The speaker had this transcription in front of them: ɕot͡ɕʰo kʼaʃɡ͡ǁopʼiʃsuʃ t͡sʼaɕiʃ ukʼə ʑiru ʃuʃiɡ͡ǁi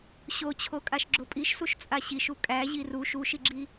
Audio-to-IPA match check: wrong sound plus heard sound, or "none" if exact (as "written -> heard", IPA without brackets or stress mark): ə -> æ